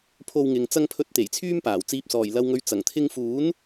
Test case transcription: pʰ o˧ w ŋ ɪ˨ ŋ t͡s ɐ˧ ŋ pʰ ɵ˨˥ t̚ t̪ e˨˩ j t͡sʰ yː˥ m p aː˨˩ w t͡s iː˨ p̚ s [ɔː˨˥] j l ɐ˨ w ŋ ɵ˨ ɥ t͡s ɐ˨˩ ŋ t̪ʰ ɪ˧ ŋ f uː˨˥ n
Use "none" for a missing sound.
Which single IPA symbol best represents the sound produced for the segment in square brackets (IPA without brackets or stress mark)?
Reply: ɔː˨˩